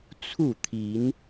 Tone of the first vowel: falling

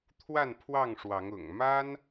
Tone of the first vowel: falling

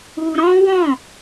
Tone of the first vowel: high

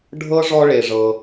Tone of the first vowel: high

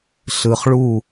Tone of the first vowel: low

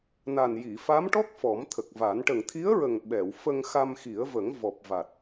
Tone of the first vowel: low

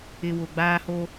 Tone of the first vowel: low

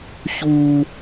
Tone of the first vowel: high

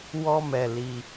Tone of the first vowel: high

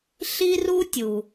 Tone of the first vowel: high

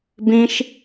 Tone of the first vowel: high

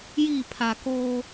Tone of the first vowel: falling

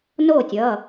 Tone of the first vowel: falling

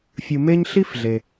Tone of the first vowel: low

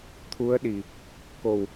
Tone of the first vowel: rising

